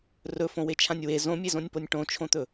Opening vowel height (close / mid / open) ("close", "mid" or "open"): mid